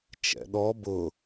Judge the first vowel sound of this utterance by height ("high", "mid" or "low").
mid